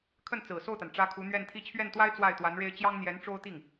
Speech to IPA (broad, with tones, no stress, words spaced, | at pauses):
kʰə˥˩nt͡sɹ̩˨˩so˥˩ʊ̯t̪a˩n ʈ͡ʂä˧˥ kʰu˧˥ n̪ɥɛ˥˧nt̪ʰi˥˧ t͡ɕʰɥɛ˥˩nt̪wa˥ɪ̯ t͡swa˥˩ɪ̯t̪wa˧˥nɻe˥ɪ̯ t͡ɕjɑ˥ŋn̪jɛ˧˥nʈ͡ʂo˥ʊ̯t̪i˥˩ŋ